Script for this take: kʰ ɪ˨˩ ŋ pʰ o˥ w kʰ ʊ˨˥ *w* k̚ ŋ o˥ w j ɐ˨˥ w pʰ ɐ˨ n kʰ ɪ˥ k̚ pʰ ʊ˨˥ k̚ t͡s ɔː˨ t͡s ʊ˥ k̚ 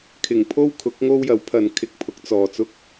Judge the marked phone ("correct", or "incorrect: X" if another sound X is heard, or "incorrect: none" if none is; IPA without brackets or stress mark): incorrect: none